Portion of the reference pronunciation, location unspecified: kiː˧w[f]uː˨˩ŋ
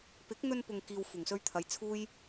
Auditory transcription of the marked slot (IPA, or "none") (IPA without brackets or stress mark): f